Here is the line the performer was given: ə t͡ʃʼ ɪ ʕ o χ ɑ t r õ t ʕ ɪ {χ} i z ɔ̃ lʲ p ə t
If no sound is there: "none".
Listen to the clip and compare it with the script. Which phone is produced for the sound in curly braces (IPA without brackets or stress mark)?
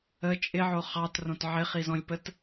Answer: χ